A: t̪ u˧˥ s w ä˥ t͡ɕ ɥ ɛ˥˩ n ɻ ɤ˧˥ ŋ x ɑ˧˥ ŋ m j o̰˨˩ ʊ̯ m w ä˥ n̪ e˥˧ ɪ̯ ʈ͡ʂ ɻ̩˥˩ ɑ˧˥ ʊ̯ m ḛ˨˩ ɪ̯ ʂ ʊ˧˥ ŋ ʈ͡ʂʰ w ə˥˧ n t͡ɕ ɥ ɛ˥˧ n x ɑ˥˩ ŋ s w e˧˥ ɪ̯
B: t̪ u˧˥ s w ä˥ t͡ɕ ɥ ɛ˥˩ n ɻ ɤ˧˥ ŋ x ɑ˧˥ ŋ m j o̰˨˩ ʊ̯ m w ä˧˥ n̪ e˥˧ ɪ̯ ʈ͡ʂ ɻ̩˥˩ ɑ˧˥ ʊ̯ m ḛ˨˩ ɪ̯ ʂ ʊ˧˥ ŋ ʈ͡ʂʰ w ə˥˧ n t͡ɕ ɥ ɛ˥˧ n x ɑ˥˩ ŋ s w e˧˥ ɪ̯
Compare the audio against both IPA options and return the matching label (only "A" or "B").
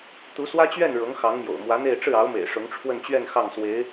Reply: B